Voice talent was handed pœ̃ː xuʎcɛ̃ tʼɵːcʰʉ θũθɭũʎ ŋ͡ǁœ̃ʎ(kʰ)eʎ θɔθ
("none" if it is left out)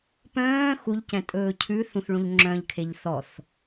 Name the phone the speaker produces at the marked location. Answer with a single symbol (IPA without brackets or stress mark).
kʰ